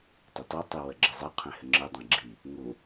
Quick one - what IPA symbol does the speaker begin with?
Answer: tˤ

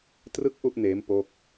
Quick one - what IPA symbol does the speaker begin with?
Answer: t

